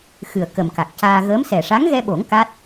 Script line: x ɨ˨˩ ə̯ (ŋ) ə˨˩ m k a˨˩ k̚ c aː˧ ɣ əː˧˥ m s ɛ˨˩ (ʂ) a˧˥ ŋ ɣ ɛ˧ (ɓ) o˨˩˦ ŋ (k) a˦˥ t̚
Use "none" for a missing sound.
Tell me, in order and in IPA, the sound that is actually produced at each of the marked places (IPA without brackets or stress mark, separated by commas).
k, ʂ, ɓ, k